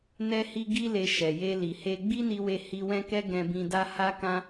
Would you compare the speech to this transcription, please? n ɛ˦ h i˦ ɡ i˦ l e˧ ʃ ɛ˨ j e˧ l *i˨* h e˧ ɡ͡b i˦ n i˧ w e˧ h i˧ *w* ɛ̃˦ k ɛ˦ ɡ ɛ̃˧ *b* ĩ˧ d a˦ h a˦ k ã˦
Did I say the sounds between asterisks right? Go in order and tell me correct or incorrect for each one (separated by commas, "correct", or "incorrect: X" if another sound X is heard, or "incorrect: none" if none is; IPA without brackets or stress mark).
correct, correct, correct